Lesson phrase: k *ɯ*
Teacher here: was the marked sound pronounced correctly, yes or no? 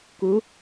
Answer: no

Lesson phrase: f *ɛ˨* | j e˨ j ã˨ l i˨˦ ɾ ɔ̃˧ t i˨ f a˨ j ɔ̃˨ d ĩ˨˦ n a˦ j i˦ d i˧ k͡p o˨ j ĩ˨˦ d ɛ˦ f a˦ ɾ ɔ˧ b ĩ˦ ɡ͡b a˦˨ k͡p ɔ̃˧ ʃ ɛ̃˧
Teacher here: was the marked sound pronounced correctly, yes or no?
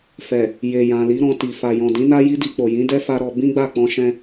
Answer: yes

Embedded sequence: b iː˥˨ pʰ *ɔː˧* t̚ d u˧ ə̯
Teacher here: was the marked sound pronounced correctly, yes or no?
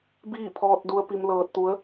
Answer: yes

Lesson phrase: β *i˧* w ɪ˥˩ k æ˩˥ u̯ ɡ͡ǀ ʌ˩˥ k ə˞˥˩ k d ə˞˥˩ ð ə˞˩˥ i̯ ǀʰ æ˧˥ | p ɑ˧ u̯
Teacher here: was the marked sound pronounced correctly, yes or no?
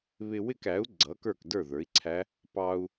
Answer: no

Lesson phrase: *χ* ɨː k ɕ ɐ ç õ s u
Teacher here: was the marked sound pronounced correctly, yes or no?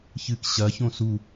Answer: no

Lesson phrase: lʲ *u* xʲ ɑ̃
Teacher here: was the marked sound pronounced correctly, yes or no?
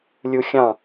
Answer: yes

